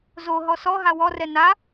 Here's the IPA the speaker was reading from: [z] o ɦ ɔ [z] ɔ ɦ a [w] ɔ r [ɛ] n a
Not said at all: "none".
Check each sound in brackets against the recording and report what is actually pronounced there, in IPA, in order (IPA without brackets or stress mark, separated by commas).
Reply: z, s, w, ɛ